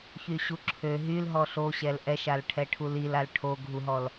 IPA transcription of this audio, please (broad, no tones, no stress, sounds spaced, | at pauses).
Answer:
ç y ɕ u ǁʰ ø ɦ y l ɦ ɔ ɬ o ɕ ɛ l ʔ ɛ ʃ a l ʈʰ ɛ ʈʰ u l i l a l ʈʰ o ɡʱ u ɦ ɔ l